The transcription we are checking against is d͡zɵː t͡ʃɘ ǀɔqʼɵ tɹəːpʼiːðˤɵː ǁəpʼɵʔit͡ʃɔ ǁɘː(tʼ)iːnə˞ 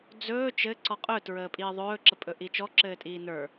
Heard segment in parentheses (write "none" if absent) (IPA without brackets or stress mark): tʼ